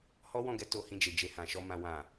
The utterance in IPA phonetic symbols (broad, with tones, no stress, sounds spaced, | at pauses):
h ɔ˦ w ɔ̃˦˨ ɡ ɛ˧ t o˨ h ĩ˨ d͡ʒ e˨ d͡ʒ e˧ h ã˨ ʃ ɔ˧ m ã˨ w ã˨